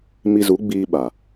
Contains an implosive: yes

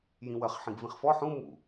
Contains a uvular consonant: yes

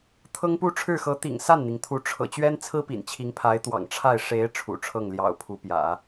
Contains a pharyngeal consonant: no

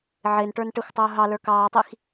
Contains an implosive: no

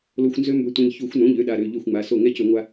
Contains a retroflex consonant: no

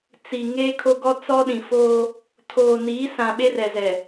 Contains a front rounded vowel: no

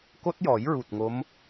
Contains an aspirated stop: no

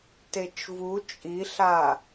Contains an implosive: no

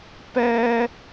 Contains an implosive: no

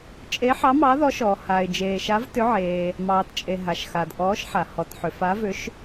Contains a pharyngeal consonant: yes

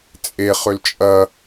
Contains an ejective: yes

